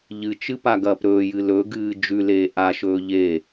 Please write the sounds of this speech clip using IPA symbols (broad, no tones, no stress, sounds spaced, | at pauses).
ʎ ɨ t͡ʃ ɨ p a ɡ ɐː p ɾ ɵː j ɨ l ɵ ɡ ɨː d͡ʒ ʉ l eː ʔ a ʃ ɵː ʎ e